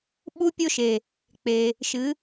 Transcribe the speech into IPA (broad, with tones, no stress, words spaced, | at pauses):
ɓu˧pʲo˧ʃe˩ | k͡pe˩ | ʃɨ˩˧